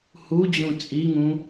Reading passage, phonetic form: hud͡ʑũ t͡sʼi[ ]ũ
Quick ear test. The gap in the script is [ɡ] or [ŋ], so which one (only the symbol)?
ŋ